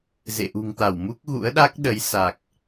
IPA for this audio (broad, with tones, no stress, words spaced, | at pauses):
zḛ˧˨ʔṳ˨˩ŋt̪a˧˩wmu˦˥k̚ ɣṵ˧˥ə̯ɗa˦˥k̚ ɗə˨˦jsa˨˩k̚